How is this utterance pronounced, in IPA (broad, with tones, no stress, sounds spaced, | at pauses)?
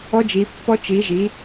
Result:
ɔ˧˥ d͡ʒ i˩˧ pː ɔ˧ t͡ʃ i˩˧ ʒ i˩˧